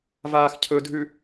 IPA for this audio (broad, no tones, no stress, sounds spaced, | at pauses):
v aː x cʰ ɵ dʱ ʉ